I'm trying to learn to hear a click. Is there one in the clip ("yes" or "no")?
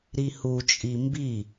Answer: no